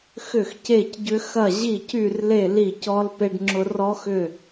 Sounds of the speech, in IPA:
x ʏ˥˨ x c e˥˨ c ɟ ʏ˥ x ɐ˥˨ ʑ i˥˨ c y˥˨ r l e˥˨ l i˥˨ c ɔ˥ l p e˥ ɖ ŋ͡ǁ ʊ˥ r ɔ˥ x ʏ˥˨

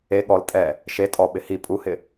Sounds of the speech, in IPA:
e ɠ ɔ l tʼ ɛ | ʃ e tʼ ɔ ɓ ɪ h i pʼ u h ɪ

